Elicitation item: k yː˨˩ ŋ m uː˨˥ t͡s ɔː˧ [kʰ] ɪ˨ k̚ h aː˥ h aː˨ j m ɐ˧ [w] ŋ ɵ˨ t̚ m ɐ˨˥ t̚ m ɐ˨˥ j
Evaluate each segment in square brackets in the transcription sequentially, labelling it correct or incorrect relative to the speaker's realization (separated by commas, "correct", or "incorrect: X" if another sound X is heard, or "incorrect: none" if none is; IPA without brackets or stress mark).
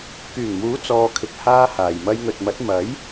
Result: correct, incorrect: j